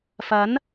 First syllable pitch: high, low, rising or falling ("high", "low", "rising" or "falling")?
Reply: rising